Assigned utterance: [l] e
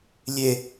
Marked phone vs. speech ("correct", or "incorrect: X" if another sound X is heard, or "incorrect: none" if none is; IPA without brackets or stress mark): incorrect: lʲ